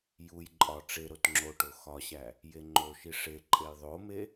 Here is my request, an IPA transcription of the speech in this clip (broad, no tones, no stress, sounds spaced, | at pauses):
j u j ǃʼ ɒ ʈ͡ʂ e ɾ o t ŋ͡ǁ o ʈ o x ɒ ɕ æ | j e ŋ͡ǃ o ʃ i ʂ e ǃʼ e j ðˤ o m e